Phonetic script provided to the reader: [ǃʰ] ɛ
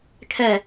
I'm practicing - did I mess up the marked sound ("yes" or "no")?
yes